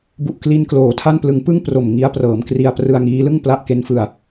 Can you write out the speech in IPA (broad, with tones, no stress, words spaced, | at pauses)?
bu˨˩ʔ kli˧nkloː˩˦tʰa˥˩nplɯ˧ŋ pɯ˥˩ŋpro˨˩m ŋi˦˥a̯prɤː˩˦mkri˧a̯ prɯ˧a̯ŋiː˦˥ lɯ˥˩ŋ pla˦˥ʔke˦˥nfɯ˧a̯